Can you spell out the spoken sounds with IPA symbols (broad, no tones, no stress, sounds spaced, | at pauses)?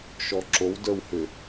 ʃ ɔ ǁ o w d ə˞ w h ʏ